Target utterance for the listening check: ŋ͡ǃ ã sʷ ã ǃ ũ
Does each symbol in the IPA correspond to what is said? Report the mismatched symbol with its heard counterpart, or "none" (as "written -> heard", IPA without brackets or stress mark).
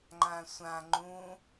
ǃ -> ŋ͡ǃ